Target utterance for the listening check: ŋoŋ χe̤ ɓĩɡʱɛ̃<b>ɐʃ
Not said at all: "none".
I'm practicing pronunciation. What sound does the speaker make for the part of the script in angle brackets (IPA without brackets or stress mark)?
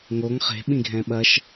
ɓ